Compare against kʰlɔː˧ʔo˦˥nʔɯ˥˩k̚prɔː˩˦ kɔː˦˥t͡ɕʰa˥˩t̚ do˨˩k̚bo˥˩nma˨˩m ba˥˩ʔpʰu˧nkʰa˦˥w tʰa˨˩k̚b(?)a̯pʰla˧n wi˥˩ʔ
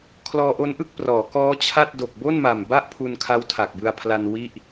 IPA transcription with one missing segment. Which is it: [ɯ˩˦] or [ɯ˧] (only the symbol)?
ɯ˧